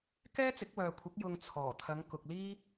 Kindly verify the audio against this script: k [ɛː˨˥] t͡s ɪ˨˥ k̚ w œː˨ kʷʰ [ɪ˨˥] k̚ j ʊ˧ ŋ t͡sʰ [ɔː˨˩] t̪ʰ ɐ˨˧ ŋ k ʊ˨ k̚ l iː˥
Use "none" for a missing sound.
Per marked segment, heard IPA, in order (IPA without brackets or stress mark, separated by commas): ɛː˥, ɪ˨˥, ɔː˨˩